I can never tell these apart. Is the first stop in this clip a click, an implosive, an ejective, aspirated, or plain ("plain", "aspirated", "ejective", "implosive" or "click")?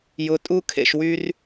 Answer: ejective